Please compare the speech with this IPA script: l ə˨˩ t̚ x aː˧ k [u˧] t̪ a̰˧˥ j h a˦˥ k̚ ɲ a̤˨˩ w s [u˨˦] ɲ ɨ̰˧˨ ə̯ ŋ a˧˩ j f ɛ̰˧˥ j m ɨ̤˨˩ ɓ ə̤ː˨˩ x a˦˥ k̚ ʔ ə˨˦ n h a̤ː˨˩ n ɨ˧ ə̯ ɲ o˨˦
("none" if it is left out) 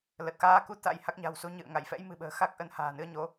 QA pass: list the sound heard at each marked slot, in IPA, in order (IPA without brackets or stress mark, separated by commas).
u˧, u˨˦